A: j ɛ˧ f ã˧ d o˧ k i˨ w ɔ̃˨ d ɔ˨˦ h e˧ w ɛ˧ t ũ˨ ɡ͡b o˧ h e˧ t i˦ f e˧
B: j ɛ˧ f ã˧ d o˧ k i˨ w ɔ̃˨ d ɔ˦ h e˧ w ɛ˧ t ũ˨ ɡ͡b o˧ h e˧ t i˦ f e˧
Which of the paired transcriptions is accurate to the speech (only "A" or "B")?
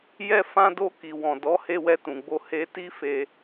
A